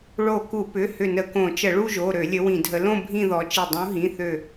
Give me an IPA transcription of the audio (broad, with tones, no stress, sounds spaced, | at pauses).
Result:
ɭ o˧˩ k u˧˩˧ p ʏ˩˧˩ h ʏ˧˩ n ə˧˩ k õ˧˩˧ t͡ʃ ə˧˩˧ ɭ u˥˧ ʒ o˩˧˩ ɾ ø˧˩˧ lʲ ə˨˦ w ĩ˧˩˧ dʱ ə˨˦ l õ˥˧ bʱ ĩ˥˧ ð ɔ˨˦ t͡ʃ i˧˩ dˤ ũ˨˦ ɦ ĩ˩˧˩ θ ø˧˩